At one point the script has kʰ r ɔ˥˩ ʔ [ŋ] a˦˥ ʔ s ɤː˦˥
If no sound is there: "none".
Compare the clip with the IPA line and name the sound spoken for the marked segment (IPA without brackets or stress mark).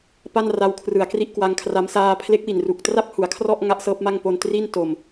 ŋ